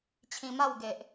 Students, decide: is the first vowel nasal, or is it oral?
nasal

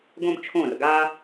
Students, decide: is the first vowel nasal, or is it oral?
nasal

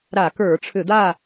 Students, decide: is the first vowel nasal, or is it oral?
oral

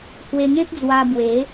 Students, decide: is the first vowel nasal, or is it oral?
oral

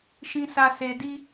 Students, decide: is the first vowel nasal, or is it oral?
nasal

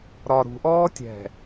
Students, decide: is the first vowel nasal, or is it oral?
oral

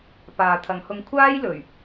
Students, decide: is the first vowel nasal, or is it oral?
oral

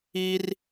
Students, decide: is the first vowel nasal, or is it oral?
oral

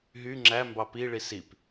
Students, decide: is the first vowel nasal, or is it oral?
oral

